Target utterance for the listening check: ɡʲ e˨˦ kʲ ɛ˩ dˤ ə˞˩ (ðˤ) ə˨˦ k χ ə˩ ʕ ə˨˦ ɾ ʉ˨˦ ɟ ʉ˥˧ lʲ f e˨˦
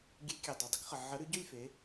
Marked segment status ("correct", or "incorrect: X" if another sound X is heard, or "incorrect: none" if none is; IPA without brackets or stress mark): incorrect: dˤ